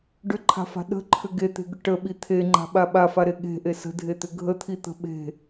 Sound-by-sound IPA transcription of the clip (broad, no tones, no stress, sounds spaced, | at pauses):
ɖ ʏ ǃʰ a̤ f a̤ ɗ ə̤ ǃʰ ʏ ɡ e t̪ e̤ ɡ ʏ ʈ ə ɓ i t̪ʰ e ŋ͡ǃ a̤ ɓ a ɓ a f a ɾ e ɠ e̤ ʔ e s ə̤ dʱ e t̪ ʏ ɡʱ ə t̪ʰ i t̪ ə̤ ɓ e̤